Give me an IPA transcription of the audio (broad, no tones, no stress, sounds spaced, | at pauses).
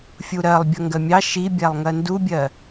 fʲ u ɾ ɜ lˠ bʲ ʌ ŋ ɡ ɜ mʲ ɑ ʃ i bʲ æ lˠ ŋ ɜ n d u bʲ ɜ